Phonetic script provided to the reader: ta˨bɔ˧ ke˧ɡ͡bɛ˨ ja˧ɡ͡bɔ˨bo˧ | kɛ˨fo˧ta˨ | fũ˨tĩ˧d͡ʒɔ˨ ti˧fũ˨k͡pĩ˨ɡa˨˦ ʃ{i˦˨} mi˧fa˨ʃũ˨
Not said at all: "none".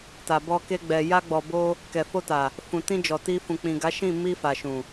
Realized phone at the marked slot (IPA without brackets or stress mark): ĩ˦˨